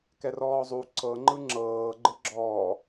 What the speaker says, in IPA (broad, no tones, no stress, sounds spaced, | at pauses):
k ɛ r ɔː zˤ u ǀ ɤ ŋ͡ǃ ɯ ŋ͡ǁ ɤː ɡ͡ǃ ɯ ɡ͡ǁ ɔː